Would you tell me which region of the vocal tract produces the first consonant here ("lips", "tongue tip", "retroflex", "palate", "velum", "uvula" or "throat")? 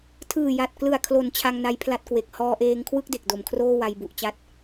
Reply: tongue tip